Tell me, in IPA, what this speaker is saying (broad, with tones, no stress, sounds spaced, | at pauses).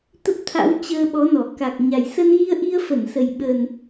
t̪ ə˦˥ p̚ t̪ʰ a̰˧˥ w t͡ɕ əː˧ ɓ ɔ˨˦ n ɔ˧˩ k a˨˩ k̚ ɲ a˨˩ j s ə˧ n ɣ i˧ ə̯ ʔ i˧ ə̯ f ə˧˩ n s ə˨˩ j ɓ ə˨˩ n